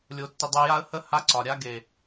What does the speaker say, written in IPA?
lʲo˧tːɪ˧ dˤœ˧ja˦ə̯hə˦ ha˦ǀɒ˨ɾʲa˦ ɡe˨

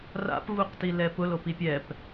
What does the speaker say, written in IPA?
ra̰pvuqtilɛ pʊlopi pʲɛp

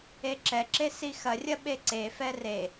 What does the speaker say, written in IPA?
eǁɛǁe sixɐrʲɐ ɓeǀefɛ re

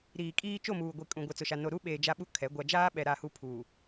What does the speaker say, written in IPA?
ɾiː˨kʼiː˦ t͡ʃo˦˨muː˨ɡʷi˨ kʼũ˨ ɡʷɛ˨t͡sʊ˨ʃa˨ no˨ɾu˦ɓeː˨ d͡ʒa˦ɓu˦˨kʰɛ˨˦ ɡʷa˨d͡ʒaː˦ɓɛ˨ ɾa˦˨hu˦ pʰuː˨

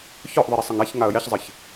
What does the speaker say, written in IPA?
çɔʔðˤi ɾesˤɘŋaç ŋaə̯jɛçzˤɘç

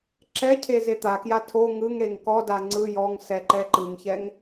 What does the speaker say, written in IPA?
ǁɛcʰe zet̪akja tʰo ŋɯŋɾeŋ kɔda ŋ͡ǀɯ jɔŋ sɛǃɛǃɯŋçɛŋ

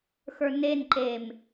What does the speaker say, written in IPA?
xə˞nenǃem

